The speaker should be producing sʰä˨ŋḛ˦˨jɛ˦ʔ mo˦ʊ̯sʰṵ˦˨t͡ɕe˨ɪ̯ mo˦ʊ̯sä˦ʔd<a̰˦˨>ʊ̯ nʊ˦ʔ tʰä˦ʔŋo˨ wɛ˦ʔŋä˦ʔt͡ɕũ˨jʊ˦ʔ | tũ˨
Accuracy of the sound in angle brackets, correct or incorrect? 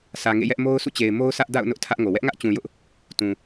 correct